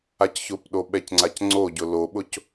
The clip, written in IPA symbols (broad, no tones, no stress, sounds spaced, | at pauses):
a c ç ʊ p ɗ o ɓ ɛ c ŋ͡ǀ a c ŋ͡ǀ o ɟ ʊ l o ɓ ʊ c